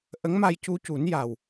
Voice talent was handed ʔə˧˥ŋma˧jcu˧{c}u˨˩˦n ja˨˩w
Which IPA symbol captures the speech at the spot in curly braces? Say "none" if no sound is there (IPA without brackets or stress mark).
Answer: c